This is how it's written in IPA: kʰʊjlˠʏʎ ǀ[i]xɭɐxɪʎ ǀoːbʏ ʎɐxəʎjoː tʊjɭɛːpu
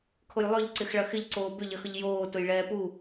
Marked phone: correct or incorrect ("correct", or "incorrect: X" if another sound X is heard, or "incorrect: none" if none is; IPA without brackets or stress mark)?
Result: incorrect: ɪ